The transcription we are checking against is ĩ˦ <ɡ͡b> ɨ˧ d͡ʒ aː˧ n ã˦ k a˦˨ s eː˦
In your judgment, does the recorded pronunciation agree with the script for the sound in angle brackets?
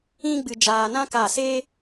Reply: yes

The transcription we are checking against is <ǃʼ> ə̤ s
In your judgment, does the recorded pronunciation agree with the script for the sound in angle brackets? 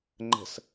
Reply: no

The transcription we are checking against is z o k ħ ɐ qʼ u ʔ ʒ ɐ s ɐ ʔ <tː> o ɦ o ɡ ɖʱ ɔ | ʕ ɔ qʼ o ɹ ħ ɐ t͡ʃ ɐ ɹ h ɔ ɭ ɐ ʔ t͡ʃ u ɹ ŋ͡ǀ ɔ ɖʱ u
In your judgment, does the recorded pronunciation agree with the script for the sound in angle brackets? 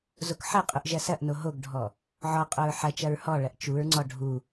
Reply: no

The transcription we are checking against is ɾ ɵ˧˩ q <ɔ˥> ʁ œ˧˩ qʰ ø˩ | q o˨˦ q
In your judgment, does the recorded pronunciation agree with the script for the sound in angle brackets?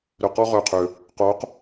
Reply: yes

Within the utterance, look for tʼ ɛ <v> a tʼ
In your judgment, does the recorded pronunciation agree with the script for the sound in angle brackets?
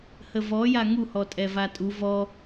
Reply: yes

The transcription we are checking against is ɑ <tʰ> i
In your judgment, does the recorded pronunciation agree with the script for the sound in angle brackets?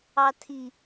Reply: yes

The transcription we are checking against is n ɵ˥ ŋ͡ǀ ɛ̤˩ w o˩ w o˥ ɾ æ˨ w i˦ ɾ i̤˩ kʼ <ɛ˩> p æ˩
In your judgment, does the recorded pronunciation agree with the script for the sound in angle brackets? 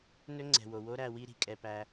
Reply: yes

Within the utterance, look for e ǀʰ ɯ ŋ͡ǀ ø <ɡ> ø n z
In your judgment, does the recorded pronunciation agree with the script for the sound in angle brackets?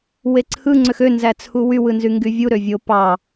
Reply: no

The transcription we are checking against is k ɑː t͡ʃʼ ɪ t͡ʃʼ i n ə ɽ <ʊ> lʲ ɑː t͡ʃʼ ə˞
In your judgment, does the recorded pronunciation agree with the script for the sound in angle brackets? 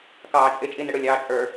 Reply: yes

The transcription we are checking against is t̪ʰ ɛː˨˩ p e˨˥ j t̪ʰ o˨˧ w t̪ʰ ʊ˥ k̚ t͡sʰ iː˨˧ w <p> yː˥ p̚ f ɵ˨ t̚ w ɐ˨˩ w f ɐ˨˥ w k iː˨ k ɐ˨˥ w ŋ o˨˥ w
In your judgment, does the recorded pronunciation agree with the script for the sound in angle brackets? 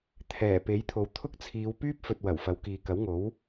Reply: yes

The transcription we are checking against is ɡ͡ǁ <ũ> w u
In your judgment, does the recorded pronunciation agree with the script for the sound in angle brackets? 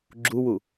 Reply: no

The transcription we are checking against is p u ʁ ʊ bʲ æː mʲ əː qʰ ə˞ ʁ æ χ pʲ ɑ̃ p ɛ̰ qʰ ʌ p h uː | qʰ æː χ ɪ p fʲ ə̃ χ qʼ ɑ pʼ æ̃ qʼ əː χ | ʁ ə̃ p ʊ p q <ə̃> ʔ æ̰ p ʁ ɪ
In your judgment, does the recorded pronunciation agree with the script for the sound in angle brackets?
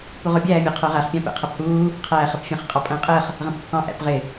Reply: no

